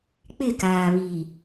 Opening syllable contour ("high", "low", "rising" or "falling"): falling